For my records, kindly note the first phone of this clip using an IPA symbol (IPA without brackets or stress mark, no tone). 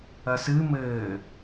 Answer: ɐ